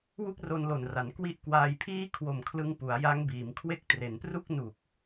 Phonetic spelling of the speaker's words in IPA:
wu˥˩k̚ro˧nlo˨˩nra˩˦n kwi˦˥ʔkwaː˧jpʰiː˥˩ kʰwo˨˩mkʰlɯ˧ŋ pu˩˦a̯ja˦˥ŋbiː˩˦mkʰwe˥˩k̚ tre˩˦npru˥˩k̚ nu˨˩k̚

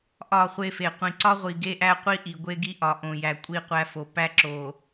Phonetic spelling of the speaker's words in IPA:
ʔɒ˦˨χʷe˦fe˨ qʷĩ˨ǀɒ˦ʁʷi˨ ɡe˦ʔæ˦qʷi˦ ʔi˨ɡʷe˦ɡi˦ ʔɒ˨ ʔõ˨jæ˨ kʷʼi˦˨qʷæ˦fo˨ pæ˦ǁo˨

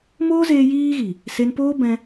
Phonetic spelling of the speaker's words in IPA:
moː˦zeː˧ jiː˦ɣi˨ | se˧npoː˦bɛ̃˧

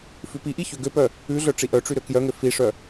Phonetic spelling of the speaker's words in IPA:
fʉpiʔi çøɡøpœ | ʉɮœ ʈ͡ʂiʔœʈ͡ʂy ɾøkjœŋø fiʂœ

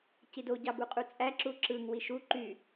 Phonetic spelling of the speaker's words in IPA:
cido ɟɑbuqʼut͡sʼæ ǁuǁɯŋ wiʃu ǃy

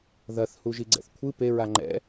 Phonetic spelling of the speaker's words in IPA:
ðɐθ huʒiɡ͡ǀɛ̰θkʷʰɨ peɹa ŋ͡ǃɛ̰

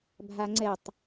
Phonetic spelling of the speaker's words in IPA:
bʱaŋ͡ǀɛtˤ

